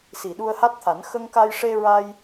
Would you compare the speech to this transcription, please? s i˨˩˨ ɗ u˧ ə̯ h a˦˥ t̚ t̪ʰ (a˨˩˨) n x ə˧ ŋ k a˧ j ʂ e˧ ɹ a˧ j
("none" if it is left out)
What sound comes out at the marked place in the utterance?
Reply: a˨˩˦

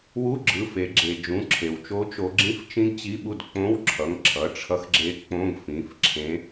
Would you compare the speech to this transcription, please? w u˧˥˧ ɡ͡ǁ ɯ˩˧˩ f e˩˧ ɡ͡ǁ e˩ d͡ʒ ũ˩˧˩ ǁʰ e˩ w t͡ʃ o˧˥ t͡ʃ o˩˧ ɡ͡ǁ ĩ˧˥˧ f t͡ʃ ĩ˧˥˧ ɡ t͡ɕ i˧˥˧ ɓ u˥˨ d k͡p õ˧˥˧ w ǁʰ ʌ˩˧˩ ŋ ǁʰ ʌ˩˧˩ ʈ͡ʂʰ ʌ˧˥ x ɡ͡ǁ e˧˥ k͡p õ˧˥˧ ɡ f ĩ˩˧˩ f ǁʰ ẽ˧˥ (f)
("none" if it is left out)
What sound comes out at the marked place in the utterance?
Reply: none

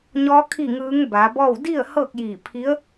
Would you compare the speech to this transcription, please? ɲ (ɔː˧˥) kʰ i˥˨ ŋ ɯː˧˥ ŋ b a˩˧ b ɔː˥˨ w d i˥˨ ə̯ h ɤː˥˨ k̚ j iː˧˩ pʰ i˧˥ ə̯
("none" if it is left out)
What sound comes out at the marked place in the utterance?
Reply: ɔː˧˥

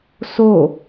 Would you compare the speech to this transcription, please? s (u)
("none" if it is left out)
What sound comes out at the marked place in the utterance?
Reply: o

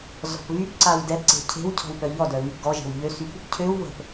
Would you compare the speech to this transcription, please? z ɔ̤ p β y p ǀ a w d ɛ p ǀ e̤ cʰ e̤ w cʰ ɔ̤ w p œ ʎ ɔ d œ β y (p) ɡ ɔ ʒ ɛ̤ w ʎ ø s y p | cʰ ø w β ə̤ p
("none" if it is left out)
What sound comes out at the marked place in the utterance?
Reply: p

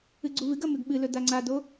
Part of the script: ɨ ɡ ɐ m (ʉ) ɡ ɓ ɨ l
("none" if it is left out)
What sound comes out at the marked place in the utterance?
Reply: ʉ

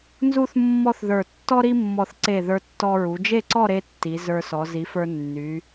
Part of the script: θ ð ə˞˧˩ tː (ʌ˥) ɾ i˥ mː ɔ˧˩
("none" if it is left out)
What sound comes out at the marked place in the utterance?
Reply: ɔ˥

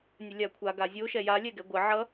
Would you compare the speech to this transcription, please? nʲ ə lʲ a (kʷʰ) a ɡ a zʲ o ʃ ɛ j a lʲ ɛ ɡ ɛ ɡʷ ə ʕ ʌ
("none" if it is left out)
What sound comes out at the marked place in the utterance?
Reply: kʷʰ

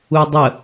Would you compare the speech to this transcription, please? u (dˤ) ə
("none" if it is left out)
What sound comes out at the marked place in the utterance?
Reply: dˤ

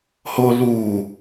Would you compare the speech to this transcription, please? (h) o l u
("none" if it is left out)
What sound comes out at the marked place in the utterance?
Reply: h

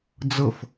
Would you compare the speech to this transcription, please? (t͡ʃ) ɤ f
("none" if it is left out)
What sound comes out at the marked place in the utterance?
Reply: d͡z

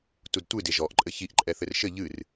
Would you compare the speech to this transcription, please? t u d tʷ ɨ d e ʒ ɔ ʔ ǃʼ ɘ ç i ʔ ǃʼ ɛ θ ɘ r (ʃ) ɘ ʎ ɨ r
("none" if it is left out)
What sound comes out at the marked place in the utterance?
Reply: ʃ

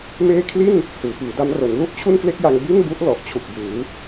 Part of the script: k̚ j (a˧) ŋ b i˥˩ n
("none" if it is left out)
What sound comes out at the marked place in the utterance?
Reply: a˧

